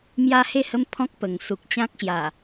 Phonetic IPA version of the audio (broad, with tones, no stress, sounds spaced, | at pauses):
m j a˦ h e˥˧ h ə˦ m pʰ ɔ̃˦ k̚ p ə˨˩ ŋ s u˨ k̚ t͡ɕ ã˦ k̚ ɕ j a˨˩